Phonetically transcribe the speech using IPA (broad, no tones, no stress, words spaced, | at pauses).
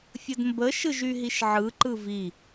fʲədmbə ʃɯʒyɦiʃʕɯ ǃɯvi